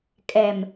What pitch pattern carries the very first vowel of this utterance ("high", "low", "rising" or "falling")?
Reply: low